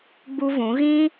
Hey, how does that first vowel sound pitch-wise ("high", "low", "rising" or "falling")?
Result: high